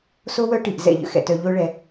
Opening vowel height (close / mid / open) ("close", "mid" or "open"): mid